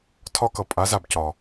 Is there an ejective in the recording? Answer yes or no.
yes